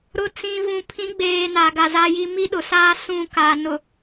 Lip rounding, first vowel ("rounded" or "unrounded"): rounded